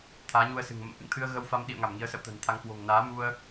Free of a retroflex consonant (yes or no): yes